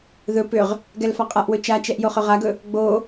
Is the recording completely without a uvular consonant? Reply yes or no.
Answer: no